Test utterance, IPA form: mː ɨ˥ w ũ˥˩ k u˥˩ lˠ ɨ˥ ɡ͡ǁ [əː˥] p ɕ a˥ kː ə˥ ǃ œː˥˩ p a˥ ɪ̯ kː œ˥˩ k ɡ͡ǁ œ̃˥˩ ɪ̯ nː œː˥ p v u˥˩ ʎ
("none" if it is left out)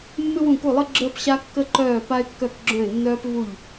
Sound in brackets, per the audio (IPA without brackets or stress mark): əː˥